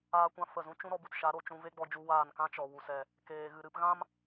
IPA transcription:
aː˦ kʷ ã˦ f ə˦˨ z ũ˦ t͡ʃ ũ˦ ɾ ɔ˦ b u˧ t ʃ a˨˦ ɾ o˧ t͡ʃ ũ˧ v e˦ ɡ͡b ɔ˧ d͡ʒ u˧ w aː˦˨ n k ã˦ t͡ʃ ɔ˨ w u˨ s ɛ˨ | k eː˨ ɣ ɨ˨ ɾ ɨ˨˦ p ɣ ã˦ m

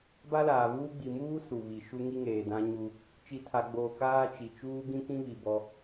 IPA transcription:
b a˦ l aː˨ β uː˦ ɡ͡b i˨ m uː˦ s u˨ β i˨ ʃ u˦ ŋ i˦ ŋ eː˨ d ã˦ ɲ u˦ | t͡ʃ i˨ tʰ a˨ ɡ͡b oː˨ k aː˦ t͡ʃ i˨ t͡ʃ uː˦ ɡ ĩ˦ k ĩ˦ β i˨ b ɔ˦

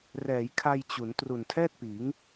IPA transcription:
r ɛː˩˦ j kʰ a˧ j t͡ɕ u˩˦ n t r u˨˩ n tʰ ɛː˥˩ t̚ p iː˩˦ ŋ

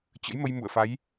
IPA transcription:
t͡ɕ ə̰˧˥ j m ə˧ j m ṵ˧˨ ə̯ f a˨˦ j

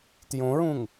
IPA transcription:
t j õ ɹ ũ ŋ

